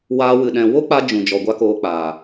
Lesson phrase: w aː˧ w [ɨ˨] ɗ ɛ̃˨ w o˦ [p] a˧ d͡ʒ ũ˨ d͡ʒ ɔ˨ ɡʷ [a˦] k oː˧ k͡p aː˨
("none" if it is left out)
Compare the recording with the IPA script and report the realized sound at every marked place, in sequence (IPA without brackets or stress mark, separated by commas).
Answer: ɨ˨, k͡p, a˦